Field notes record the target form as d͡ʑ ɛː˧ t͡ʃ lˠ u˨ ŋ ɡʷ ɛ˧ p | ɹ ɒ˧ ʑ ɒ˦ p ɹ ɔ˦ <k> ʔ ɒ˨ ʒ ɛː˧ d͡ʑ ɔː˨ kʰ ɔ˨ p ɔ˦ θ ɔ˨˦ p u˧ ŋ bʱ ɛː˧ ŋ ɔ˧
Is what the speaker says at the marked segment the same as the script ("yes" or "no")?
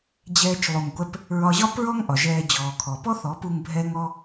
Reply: no